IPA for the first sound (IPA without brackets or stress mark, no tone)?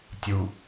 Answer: tʲ